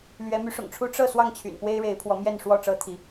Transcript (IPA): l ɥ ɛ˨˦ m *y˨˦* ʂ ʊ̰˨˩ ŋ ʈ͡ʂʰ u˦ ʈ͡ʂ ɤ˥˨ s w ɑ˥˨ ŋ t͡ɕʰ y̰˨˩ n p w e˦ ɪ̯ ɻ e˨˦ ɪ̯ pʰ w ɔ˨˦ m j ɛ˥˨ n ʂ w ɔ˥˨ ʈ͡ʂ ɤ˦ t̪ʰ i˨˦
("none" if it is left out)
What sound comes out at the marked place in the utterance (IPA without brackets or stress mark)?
y˨˦